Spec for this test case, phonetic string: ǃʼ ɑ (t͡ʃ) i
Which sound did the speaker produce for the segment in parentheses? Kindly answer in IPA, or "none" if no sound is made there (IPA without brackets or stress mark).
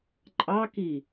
k